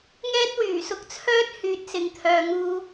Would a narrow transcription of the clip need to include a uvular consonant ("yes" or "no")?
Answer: no